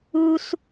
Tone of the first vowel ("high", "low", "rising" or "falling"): high